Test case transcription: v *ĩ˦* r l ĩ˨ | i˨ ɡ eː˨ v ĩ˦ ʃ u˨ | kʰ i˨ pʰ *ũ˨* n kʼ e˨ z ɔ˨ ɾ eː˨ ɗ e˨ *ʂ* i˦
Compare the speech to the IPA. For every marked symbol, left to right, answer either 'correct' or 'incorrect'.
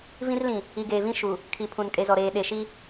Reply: correct, correct, incorrect

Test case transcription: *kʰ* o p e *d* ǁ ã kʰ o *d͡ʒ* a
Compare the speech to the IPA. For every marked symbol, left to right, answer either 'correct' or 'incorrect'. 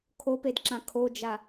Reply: correct, correct, correct

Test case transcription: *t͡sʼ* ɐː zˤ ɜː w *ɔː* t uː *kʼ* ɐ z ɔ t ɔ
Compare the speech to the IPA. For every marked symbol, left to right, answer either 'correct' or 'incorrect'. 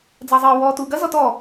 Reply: incorrect, correct, incorrect

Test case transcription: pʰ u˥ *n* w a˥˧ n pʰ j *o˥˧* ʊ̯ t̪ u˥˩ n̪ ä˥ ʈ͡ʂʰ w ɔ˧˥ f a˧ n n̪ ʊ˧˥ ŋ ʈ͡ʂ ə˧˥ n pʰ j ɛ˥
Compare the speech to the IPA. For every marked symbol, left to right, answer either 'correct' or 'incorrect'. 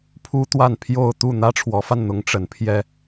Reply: incorrect, correct

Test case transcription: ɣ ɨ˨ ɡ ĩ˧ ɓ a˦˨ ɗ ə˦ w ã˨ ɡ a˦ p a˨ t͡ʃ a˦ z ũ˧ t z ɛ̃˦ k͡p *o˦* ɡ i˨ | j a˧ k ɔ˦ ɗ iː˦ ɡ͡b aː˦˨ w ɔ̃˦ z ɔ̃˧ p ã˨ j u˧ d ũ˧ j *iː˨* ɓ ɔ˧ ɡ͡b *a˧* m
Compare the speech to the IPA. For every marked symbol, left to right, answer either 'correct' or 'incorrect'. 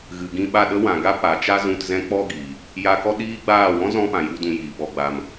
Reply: incorrect, correct, correct

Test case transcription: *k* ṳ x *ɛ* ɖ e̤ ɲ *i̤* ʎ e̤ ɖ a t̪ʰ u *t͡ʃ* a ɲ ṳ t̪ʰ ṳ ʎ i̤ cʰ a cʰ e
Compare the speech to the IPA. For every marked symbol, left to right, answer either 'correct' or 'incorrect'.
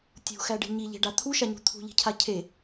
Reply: incorrect, incorrect, incorrect, incorrect

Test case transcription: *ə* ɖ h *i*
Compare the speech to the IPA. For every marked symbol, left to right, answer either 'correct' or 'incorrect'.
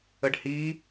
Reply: correct, correct

